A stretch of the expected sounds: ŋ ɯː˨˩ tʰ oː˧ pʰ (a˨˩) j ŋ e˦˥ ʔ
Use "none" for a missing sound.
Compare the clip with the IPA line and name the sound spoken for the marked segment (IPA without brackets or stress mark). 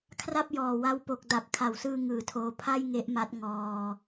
a˥˩